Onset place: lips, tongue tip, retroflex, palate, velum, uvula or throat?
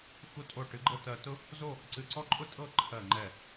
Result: velum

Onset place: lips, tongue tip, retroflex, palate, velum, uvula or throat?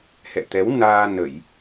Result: throat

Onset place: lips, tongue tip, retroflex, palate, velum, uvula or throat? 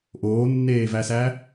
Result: throat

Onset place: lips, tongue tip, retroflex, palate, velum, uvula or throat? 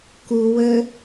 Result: velum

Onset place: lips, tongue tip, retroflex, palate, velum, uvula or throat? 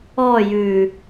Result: palate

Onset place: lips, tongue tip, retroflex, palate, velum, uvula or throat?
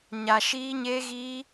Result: palate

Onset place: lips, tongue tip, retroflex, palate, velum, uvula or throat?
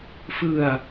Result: lips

